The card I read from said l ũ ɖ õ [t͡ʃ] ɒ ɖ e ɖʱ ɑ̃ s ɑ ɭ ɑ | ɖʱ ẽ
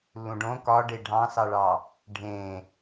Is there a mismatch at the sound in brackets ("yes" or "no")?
yes